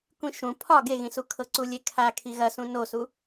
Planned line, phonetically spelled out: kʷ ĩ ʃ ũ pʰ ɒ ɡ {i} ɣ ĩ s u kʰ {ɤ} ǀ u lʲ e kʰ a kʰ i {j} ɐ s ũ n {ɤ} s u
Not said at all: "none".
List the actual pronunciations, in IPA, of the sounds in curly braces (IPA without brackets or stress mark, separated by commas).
e, ɤ, ɣ, o